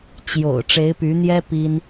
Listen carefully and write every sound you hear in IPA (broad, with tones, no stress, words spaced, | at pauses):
t͡ɕjo̰˨˩ʊ̯ ʈ͡ʂe˧˥ɪ̯py˧˥n̪jɛ˥ pi˥n